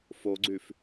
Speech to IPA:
f o ɡ͡ǀ y f

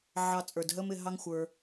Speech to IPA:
ʕ ɑ˧ t͡sʼ ə˞˨ d ɦ ə˦ m ɪ˧ ɦ ɑ˦ ŋ xʷ ə˞˧

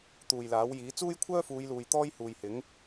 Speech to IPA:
t̪ uː˨ j l aː˨˥ w j iː˨˥ t͡s uː˥ j kʷʰ œː˥ f uː˨˧ j l uː˨ j t̪ ɔː˥ j h uː˨ j h ɪ˨˥ ŋ

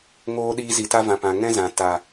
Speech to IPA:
ŋ oː˧ ɗ iː˧ z i˨ t a˦ v ã˨ p ã˨ ŋ ɛ̃˦ z ã˨ t a˨

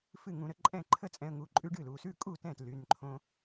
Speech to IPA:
f ɨ˥˩ ŋ ũ˧ ɾ ə˨˩˦ ǃʼ ɛ̃˥˩ ǃʰ ə˥˩ t͡sʼ ɛ̃˧ ə̯ ŋ u˩˧˩ ǃʼ ʉ˦˥ ɖ ɨ˥˩ l u˩˧˩ s ʉ˥˩ kʼ u˥˩ t ɛ̃˥˩ t l y˩˧˩ n ǃʰ õ˧

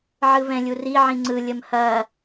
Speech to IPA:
ʕ ɯ v ɛ̃ lʲ u r i ʕ ĩ ŋ͡ǀ ɯ lʲ ə m h ɐ

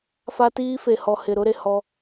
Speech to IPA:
f a˦ t iː˦ f e˨ h ɔ˨ h ɪ˨ ɾ ʊ˦ ɾ e˨ h ɔ˦

